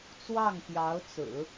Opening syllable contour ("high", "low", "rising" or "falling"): falling